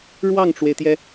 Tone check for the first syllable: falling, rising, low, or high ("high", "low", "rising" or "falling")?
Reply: falling